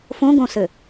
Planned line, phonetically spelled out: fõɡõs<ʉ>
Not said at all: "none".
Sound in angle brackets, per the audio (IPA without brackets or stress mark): ɘ